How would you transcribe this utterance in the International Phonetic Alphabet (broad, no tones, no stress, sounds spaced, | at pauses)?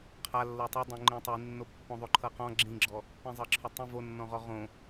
qʰ a lː ɤ tˤ a dˤ õ ŋ͡ǃ ĩ tˤ i nː o pː õ ðˤ o ǃʰ ɤ q ɔ̃ ɡ͡ǁ ĩ ɡ͡ǁ ɔ | p ĩ zˤ ɤ ǁʰ ɵ tˤ ĩ v o nː ɔ̃ ʁ ɔ ʁ õ